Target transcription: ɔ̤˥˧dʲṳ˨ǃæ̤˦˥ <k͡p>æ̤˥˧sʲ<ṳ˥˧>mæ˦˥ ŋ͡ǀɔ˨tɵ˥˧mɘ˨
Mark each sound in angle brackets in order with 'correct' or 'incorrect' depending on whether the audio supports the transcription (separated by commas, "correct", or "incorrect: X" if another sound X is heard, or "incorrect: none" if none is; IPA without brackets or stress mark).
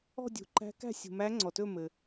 incorrect: k, incorrect: ṳ˨